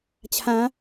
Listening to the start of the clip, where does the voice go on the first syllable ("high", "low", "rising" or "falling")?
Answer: rising